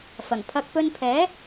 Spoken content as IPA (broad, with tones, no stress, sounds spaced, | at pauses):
f ɐ˨˩ ŋ pʰ ɐ˨ k̚ p ɵ˧ n pʰ ɛː˨˥